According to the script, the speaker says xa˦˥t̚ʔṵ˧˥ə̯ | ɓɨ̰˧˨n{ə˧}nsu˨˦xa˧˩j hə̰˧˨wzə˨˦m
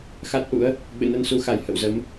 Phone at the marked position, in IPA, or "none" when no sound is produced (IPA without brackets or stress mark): ə˧